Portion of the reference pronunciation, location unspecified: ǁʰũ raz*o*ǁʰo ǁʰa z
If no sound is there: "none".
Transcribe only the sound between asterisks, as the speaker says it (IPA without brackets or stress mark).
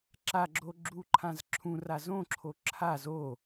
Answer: õ